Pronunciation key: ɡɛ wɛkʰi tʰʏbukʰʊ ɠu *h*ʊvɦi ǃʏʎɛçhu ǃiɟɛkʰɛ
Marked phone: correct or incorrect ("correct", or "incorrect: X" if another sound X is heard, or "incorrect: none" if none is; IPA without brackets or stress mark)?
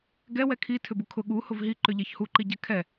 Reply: correct